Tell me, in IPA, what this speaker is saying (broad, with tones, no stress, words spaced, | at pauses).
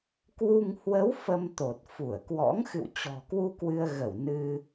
kwu˧ŋ hwə˨˦w fə˧mt̪o˨˩t̚ fu˧˩ə̯kwɔ̰˧˥ŋ xɨ̰˧˨wt͡ɕɔ̤˨˩kwu˧ kwɨ˧ə̯ɣə˧˩w nɨ˧